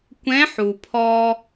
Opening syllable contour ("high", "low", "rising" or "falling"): rising